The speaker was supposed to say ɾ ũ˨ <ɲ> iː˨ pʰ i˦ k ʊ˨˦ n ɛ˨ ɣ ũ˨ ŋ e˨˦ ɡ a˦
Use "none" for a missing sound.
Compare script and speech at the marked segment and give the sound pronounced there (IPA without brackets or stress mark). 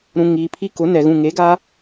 ŋ